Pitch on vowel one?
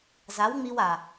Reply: rising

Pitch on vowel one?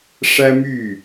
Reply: high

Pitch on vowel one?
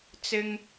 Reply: high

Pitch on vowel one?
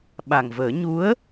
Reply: low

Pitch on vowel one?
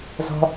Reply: high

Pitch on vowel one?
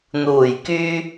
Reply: low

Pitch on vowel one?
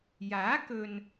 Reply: rising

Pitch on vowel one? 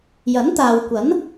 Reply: rising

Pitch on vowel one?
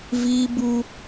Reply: high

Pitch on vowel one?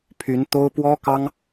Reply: rising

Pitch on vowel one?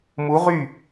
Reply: rising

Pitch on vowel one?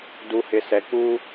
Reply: low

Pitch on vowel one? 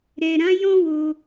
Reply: low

